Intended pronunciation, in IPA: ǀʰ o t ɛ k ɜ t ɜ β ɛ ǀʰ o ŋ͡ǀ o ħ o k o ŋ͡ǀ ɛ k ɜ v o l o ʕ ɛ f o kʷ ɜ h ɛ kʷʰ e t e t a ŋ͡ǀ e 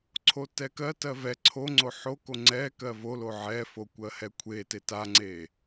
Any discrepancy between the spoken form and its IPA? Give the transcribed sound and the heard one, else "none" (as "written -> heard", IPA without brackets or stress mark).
β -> v